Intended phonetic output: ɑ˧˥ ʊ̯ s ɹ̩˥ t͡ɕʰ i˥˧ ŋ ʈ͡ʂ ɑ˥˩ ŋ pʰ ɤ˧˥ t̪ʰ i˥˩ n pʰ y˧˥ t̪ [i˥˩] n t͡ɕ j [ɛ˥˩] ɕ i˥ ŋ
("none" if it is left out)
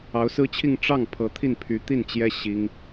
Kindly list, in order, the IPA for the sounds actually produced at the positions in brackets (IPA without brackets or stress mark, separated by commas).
i˥˩, ɛ˥